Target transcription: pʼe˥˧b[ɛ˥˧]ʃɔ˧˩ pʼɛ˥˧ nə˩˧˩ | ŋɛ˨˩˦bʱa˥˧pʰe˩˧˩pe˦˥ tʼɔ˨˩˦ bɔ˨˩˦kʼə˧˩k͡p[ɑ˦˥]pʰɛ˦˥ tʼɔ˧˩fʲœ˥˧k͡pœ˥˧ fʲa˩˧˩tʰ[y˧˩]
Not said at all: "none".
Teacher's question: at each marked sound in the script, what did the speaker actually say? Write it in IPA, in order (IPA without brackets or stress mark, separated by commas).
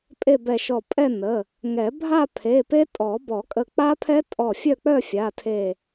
ɛ˧˩, a˦˥, e˧˩